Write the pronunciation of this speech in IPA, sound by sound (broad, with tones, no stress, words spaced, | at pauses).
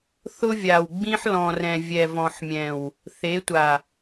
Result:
θʊ˦vʲa˨wɡ͡bĩ˦ħ lɔ̃˨rɛ̃˨ vʲɛ˨vɔ̃˨ħmʲɛ̃˨w | θe˨˦tʷa˨